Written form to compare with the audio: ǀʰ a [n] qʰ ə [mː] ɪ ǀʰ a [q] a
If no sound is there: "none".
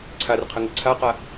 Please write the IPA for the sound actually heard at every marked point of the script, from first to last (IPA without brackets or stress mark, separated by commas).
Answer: r, ŋ, q